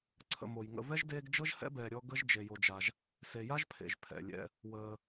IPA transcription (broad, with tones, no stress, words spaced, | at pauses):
ǀʰə̰˨mo˩j ŋə̰˨vɛ˥ʒdeː˦ɡd͡ʒɤ˥ʒ hɛ̰˥bɛː˨ ɾʲɔ˦ ɡə˥ʒ d͡ʒe˨jo˨d͡ʒa˨ʒ | se˨ja˥ʒpʰḛ˩ʒ pʰɛ̰˩lʲɛ̰˨ | wəː˨